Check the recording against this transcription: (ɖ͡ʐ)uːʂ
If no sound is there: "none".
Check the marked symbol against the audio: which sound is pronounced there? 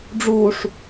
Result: ɖ͡ʐ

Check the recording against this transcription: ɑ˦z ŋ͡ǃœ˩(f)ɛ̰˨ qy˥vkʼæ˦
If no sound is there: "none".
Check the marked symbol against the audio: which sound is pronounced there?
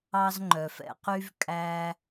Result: f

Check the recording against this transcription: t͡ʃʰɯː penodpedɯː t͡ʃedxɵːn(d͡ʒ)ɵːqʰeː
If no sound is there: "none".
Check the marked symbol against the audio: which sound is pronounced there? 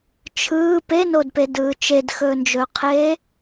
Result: d͡ʒ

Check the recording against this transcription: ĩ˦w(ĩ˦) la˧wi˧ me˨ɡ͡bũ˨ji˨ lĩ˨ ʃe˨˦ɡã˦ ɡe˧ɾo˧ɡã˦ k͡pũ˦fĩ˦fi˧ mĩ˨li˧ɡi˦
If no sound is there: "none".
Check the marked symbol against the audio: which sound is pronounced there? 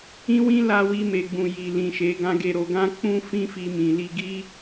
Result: ĩ˦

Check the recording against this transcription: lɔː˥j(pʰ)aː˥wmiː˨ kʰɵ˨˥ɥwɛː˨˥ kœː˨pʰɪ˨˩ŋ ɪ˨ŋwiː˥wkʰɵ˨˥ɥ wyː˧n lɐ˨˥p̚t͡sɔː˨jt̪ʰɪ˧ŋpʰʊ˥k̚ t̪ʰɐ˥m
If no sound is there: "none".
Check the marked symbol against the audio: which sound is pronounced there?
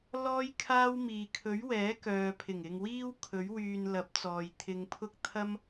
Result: kʰ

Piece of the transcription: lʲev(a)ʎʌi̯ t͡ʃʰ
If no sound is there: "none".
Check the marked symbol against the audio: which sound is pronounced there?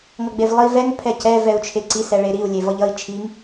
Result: ʌ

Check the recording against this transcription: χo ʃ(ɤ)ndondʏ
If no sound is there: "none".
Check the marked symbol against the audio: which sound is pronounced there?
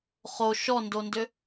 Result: ɔ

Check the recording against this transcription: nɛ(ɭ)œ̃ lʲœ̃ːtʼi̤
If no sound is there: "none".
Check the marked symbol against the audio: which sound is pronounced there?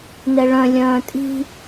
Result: ɭ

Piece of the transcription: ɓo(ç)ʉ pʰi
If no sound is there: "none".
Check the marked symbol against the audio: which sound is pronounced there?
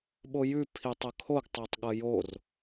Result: j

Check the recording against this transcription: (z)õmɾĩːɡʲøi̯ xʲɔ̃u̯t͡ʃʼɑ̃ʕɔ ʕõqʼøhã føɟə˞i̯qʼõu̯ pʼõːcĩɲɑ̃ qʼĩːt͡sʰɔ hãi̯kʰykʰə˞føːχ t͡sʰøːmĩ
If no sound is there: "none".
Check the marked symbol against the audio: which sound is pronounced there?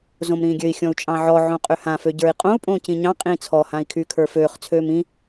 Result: z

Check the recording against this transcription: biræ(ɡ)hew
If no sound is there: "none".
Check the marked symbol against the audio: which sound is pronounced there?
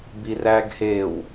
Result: ɡ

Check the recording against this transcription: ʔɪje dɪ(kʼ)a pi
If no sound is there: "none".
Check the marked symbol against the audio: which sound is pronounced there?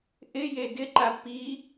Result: ǃ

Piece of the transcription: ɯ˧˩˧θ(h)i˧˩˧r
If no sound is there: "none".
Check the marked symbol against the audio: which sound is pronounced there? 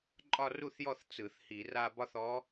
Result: h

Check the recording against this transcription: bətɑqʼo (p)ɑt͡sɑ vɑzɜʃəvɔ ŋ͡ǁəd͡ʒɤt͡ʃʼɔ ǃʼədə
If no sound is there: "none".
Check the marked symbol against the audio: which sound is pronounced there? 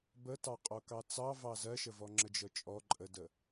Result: k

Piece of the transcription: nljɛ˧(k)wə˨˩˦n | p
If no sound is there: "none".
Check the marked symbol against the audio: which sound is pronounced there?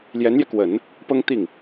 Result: k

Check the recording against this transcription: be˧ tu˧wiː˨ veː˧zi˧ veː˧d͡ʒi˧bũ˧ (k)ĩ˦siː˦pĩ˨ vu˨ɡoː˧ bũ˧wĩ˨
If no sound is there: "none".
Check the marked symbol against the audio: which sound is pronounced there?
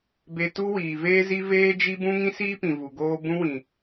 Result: ŋ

